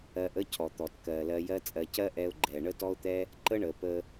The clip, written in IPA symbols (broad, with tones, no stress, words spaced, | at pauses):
ɜ˧ʔə˦cʰɔ˨ t̪ɔ˨tkɜ˨ lɜ˧jɜ˦t͡sʼɜ˧ cɜ˦ʔɛ˧ʊ̯ ɡ͡ǃɛ˨ ɳə˦tɔ˦ʊ̯t̪ɛ˦ | ǃə˦ɳə˨ pə˧